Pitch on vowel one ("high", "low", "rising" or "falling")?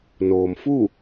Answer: low